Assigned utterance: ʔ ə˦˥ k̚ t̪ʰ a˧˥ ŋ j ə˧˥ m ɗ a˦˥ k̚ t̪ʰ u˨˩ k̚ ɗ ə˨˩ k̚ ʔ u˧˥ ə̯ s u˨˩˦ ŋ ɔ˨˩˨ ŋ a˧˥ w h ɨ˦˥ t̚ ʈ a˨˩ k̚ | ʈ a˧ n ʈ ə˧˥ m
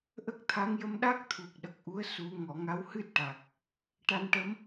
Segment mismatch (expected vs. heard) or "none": none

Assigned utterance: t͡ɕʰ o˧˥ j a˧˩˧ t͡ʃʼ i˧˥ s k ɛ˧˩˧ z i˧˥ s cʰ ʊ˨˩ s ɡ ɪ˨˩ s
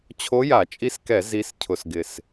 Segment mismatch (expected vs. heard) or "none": none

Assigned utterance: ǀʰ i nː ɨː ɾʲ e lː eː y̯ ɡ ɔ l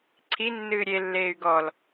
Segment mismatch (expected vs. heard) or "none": none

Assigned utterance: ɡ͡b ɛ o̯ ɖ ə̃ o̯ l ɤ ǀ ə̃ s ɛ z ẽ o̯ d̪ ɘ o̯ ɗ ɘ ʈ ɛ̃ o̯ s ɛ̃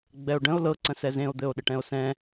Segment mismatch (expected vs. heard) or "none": none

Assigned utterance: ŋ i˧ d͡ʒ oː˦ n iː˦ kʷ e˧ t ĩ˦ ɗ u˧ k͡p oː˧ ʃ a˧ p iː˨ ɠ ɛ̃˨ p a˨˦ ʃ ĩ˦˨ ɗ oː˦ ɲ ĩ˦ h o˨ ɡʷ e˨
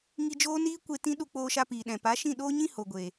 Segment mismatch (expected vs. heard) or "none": ɠ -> ɗ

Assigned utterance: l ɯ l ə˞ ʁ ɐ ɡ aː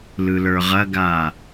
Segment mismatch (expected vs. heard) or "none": none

